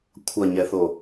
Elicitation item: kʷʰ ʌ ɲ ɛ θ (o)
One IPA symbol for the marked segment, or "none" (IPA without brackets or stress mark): o